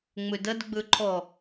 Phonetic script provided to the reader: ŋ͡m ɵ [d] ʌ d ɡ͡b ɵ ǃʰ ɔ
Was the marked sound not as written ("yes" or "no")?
no